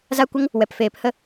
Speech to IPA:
z a˧ kʷ ə˧ ŋ | w ɛ˨ p f eː˨ p h ə˧

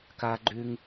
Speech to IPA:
k a˧ ɡ͡ǃ ʉ˧ ŋ

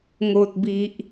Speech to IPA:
ŋ o˨ t̚ b i˨ ʔ

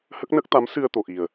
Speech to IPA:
h ə˦˥ k̚ n ə˦˥ k̚ t̪ a˧˥ m s ɨ˧ ə̯ t̪ o˨˩ ʔ i˨˩ ə̯

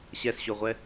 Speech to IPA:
ɕ ɛ s ɕ o ʁʷ ɛ

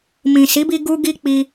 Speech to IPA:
m ĩ˨ s i˨˦ b i˧ ɡ u˦ ɡ i˦ k͡p i˧

